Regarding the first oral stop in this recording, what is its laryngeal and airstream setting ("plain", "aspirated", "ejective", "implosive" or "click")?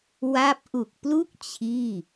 plain